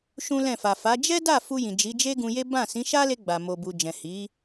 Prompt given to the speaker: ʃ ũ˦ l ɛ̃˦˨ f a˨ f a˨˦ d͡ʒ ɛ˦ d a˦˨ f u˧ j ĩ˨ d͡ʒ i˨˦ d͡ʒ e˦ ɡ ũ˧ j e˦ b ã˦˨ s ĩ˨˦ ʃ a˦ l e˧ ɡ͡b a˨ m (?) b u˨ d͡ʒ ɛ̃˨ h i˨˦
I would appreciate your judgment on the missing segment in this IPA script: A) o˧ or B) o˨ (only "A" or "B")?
B